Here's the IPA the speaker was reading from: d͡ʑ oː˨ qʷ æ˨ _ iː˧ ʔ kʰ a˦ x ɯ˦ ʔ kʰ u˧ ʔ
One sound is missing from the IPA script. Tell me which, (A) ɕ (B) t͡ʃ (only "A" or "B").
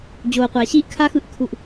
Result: A